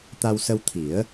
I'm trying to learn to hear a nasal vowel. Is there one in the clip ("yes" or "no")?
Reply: no